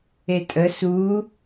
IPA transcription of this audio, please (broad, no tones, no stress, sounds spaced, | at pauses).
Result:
e tʼ ə s u